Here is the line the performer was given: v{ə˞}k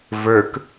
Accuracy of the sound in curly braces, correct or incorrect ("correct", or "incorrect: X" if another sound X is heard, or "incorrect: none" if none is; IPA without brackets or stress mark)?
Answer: correct